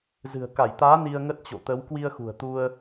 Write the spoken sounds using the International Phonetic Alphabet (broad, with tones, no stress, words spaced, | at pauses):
zɨ̤˨˩ə̯ka˧˩jt̪aː˨˦ ni˧ə̯ŋə˦˥t̚t͡ɕo̰˧˨ t̪ə˨˦w kwi˧ə̯xṳ˨˩ə̯t̪u˧ə̯